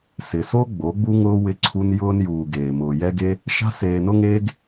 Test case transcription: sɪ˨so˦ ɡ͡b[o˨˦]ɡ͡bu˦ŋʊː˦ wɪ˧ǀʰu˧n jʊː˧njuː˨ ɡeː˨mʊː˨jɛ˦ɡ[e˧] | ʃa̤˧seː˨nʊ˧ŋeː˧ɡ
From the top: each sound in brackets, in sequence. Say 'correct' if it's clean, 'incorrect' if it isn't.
correct, incorrect: e˦

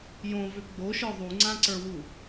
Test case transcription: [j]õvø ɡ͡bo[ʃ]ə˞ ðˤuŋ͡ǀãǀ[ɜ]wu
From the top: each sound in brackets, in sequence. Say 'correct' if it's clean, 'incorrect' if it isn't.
correct, correct, incorrect: ə˞

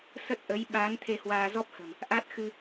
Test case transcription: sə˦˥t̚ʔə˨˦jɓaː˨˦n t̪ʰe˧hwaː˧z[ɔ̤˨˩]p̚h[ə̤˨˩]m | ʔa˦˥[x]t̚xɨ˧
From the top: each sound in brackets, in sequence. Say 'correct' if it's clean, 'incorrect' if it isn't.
incorrect: ɔ˦˥, correct, incorrect: none

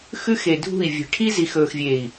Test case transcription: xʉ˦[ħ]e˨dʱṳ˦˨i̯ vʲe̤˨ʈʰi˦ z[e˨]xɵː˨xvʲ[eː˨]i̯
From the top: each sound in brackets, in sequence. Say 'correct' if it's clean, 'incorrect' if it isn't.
incorrect: x, incorrect: i˨, correct

